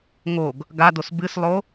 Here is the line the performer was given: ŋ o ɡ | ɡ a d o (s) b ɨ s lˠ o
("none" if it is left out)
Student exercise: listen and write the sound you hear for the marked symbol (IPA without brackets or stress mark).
s